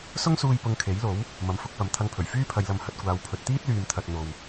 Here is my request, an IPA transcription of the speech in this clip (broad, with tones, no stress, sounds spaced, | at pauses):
s ʊ˥ ŋ s uː˧ j p ʊ˧ ŋ kʰ e˨˥ j l o˨˥ w | m ɐ˨ m f ʊ˧ k̚ p ɐ˨ m t̪ʰ ɐ˧ ŋ pʰ ɵ˨˩ ɥ f yː˥ pʰ ɐ˨˧ j l ɐ˨˧ m h ɐ˨ t̚ kʷ aː˨ w pʰ ɵ˨ t̚ t̪ iː˥ t̚ l yː˨ m t̪ʰ ɐ˨ t̚ n̪ o˨ w